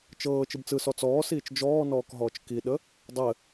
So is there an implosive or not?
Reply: yes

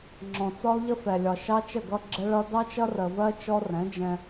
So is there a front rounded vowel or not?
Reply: no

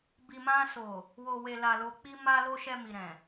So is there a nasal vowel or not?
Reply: yes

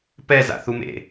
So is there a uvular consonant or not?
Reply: no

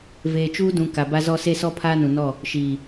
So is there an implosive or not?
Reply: no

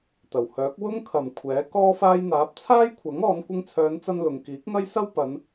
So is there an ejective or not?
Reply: no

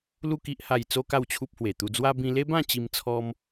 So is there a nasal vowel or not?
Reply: yes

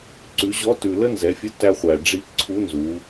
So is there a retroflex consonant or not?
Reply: yes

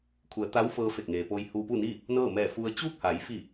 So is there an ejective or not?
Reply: no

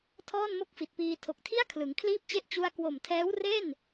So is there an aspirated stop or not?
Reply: yes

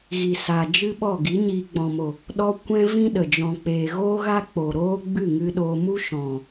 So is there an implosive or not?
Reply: yes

